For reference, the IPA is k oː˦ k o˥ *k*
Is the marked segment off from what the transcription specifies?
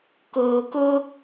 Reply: yes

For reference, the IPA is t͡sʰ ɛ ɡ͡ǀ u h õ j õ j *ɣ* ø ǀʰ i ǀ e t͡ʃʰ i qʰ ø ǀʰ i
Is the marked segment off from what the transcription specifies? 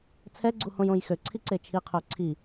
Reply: yes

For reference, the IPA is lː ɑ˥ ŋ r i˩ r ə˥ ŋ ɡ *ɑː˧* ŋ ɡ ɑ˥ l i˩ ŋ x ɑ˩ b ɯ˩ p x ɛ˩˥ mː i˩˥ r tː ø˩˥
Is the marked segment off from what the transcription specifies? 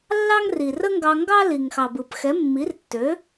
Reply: yes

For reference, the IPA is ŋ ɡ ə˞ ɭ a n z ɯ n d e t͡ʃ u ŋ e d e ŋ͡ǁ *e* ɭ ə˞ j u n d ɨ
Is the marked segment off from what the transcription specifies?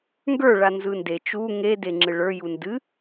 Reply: yes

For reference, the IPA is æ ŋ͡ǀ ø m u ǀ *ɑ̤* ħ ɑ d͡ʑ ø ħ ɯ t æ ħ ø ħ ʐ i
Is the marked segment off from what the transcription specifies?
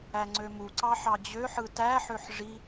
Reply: yes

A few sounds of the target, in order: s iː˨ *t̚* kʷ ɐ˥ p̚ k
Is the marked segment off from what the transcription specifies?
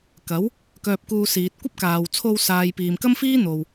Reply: no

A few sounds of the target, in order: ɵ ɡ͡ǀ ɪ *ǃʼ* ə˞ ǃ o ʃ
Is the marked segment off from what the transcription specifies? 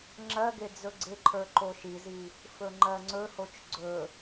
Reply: yes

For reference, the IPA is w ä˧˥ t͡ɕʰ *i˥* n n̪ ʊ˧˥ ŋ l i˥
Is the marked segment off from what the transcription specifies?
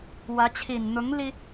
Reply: yes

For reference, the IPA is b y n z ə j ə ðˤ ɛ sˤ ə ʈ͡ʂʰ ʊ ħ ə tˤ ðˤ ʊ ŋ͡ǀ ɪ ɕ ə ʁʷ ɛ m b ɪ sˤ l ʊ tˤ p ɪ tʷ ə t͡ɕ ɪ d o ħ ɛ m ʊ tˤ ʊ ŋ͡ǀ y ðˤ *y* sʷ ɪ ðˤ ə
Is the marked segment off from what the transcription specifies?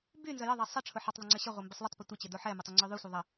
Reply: no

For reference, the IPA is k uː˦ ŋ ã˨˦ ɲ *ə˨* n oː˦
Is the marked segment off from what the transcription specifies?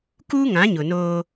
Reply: yes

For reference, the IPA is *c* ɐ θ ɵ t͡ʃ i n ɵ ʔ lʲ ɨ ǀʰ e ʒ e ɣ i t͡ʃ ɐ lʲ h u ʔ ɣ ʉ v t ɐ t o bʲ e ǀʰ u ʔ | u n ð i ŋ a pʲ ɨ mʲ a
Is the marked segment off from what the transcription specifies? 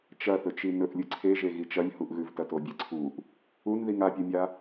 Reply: yes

